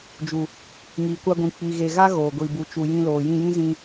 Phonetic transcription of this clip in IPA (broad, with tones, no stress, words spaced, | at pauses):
d͡ʒu˨ | ŋiː˨kʷa˧ɡʷĩ˨ k͡pi˨ɣe˨ ɣa˦ ɣoː˨ɡʷiː˨ bu˨t͡ʃu˨ jĩ˧loː˨jĩ˦˨jĩ˦ zĩ˧